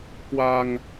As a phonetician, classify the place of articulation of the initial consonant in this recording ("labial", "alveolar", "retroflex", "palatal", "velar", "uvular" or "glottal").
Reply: velar